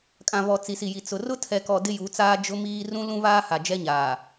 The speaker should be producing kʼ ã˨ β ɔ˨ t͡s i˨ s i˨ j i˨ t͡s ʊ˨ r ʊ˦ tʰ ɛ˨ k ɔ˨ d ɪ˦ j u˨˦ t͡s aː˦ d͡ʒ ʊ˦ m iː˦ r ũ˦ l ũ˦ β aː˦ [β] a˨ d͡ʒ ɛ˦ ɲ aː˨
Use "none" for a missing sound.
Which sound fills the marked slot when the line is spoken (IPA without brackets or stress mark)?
h